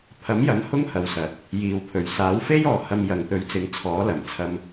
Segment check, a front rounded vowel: absent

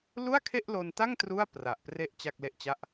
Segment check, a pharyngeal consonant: absent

